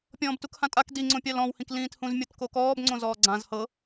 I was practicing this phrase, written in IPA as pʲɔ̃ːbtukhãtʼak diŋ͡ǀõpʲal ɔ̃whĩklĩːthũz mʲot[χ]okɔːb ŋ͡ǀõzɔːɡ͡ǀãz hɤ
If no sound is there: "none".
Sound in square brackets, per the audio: k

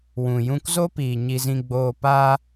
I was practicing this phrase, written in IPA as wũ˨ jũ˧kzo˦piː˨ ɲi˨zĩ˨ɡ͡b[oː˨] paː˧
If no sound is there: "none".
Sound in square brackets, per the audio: oː˨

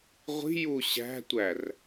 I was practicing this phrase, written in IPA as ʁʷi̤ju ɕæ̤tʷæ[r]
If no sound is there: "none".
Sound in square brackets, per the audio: r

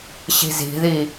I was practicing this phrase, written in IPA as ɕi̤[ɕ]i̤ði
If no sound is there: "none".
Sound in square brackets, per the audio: z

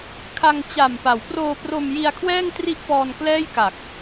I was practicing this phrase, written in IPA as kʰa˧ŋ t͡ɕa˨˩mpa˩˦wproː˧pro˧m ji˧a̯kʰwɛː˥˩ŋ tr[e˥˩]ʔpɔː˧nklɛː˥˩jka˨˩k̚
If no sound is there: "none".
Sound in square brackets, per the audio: i˥˩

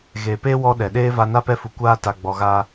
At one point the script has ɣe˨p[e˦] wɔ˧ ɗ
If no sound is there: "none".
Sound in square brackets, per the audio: e˦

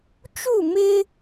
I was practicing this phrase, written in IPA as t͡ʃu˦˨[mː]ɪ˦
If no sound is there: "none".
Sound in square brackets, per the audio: m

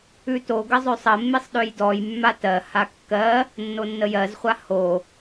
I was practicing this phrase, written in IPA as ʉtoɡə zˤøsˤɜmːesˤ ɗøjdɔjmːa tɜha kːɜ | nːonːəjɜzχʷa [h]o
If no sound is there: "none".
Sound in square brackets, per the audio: h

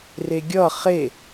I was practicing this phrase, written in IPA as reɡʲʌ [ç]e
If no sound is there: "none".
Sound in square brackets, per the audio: χ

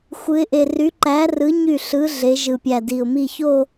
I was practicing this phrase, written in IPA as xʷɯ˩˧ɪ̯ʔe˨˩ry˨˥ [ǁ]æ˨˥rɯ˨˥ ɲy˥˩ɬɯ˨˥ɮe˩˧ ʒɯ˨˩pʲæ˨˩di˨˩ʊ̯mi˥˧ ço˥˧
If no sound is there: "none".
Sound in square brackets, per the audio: ǃ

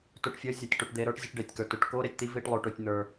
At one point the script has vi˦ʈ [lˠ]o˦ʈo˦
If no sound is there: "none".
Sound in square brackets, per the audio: lˠ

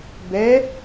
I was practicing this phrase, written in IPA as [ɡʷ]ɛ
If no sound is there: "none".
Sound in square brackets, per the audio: b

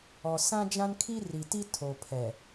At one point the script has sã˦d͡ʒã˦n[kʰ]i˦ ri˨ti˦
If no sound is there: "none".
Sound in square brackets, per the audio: kʰ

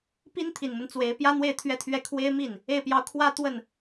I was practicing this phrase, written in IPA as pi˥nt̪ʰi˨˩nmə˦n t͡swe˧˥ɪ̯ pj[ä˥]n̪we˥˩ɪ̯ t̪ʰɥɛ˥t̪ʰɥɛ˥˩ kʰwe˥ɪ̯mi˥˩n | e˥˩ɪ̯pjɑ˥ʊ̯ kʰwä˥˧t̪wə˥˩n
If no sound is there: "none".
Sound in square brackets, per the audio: ä˥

